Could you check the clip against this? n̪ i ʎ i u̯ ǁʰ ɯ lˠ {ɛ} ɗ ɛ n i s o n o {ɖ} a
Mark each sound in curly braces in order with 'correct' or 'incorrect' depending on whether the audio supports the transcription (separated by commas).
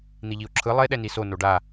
incorrect, correct